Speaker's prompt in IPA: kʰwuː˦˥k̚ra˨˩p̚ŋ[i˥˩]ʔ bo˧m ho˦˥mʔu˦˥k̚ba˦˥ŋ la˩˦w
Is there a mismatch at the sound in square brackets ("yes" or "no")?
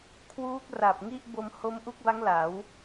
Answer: no